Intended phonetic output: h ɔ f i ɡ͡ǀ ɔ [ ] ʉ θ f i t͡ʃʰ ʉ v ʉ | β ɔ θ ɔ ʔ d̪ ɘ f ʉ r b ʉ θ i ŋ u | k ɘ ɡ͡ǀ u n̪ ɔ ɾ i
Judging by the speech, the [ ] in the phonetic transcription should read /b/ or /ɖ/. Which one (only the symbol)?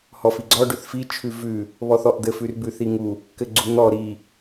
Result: ɖ